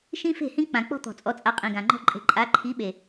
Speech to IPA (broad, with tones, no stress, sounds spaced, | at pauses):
ʃ ĩ˦ f e̤˦˨ h ĩ˦ k͡p ã˨ k͡p ɔ̤˦ t̪ ɔ̤˨ t͡sʼ ɔ˨ t͡sʼ a˨ qʼ ĩ˨ ɡ ã˨ ŋ͡ǃ ɔ̤˦ ǃʼ e̤˨ ǃʼ a˨˦ ǃʰ i˨˦ ɓ e˨